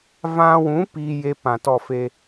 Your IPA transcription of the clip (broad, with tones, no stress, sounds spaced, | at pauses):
v ã˧ w ũ˨˦ p iː˦ j e˦ p ã˨ t ɔ˦˨ f e˦